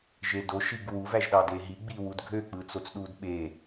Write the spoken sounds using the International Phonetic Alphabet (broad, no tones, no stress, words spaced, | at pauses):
ʒedo ʃiɡwuv æʒɗɑdeɦi ɡ͡biwudɡʱø k͡pɯt͡sot͡sɗudɓe